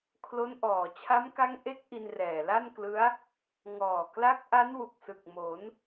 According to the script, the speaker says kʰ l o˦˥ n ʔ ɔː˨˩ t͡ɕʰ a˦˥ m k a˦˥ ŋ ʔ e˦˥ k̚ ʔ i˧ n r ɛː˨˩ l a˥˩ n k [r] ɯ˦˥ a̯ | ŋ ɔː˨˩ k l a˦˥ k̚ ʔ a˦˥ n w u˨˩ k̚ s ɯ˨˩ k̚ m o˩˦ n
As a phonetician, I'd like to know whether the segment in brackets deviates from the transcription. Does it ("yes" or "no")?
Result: yes